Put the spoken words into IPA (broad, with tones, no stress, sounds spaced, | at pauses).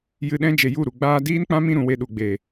j ɨ˧ ɗ ɛ̃˦ d͡ʒ e˨ j u˦˨ ɾ u˨ ɡ͡b aː˧ d iː˦ n k͡p ã˦ m ĩ˧ ɾ ũ˨ w e˧ ɗ u˨ ɡ͡b e˨